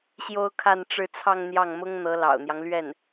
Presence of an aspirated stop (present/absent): present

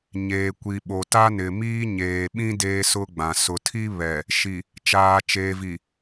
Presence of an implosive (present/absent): present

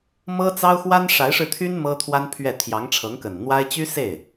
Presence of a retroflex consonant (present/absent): present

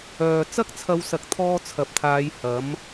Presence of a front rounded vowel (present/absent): present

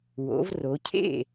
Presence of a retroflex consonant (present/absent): absent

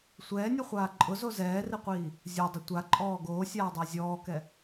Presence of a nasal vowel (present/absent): absent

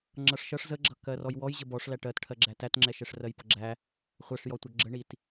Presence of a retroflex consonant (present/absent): present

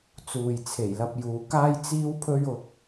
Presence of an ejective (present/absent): absent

